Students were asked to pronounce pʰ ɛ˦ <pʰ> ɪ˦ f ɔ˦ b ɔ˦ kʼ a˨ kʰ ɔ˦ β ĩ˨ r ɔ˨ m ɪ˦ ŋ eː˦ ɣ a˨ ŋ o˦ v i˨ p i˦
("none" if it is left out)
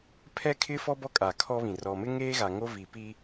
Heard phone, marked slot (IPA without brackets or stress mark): kʰ